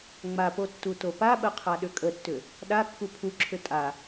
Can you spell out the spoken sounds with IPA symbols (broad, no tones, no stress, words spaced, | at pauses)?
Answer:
ŋ͡mapo tːutopaɓə qʰaɗʏkʼətːʏ | ɗa kːupʰuǁʰʏ tʼa